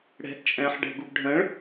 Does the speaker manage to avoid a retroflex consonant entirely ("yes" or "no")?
no